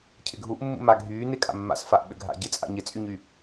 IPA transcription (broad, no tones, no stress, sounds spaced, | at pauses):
cʰ ɪ ɡʱ u ʔ mː ṵ m a ɡʱ yː n ɪ kʼ a̰ mː a̰ s f a ʔ ɓ ʏ ɡʱ a̰ ɟ ɪ t͡sʼ a̰ ɲ ɪ t͡sʼ y ɲ y